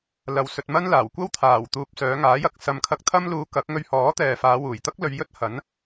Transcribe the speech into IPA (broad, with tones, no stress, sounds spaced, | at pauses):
l ɐ˨ w s ɵ˧ t̚ m ɐ˥ n l aː˨˩ w kʷ ɐ˥ w t̪ʰ aː˨˩ w t̪ uː˨ p̚ s œː˨˧ ŋ aː˨˥ j ɐ˨ k̚ s ɐ˨ m kʰ ɐ˧ k̚ t̪ʰ ɐ˥ m l uː˧ k ɐ˨˥ k̚ ŋ ɵ˧ ɥ h ɔː˨˥ t̪ ɛː˨ f aː˨˧ w uː˨˩ j t̪ ɐ˥ k̚ l ɵ˧ ɥ j ɵ˥ t̚ h ɐ˨˥ n